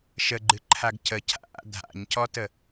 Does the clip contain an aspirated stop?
yes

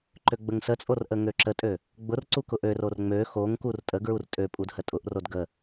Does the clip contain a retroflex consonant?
no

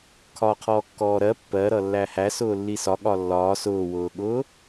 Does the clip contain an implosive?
yes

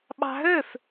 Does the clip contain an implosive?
yes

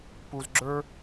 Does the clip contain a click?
yes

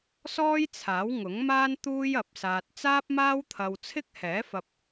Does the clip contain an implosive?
no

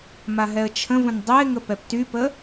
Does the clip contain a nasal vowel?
yes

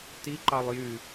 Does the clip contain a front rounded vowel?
yes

